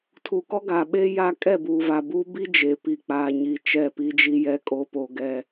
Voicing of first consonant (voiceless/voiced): voiceless